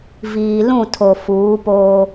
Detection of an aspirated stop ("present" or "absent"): present